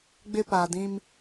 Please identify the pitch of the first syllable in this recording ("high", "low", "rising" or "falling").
high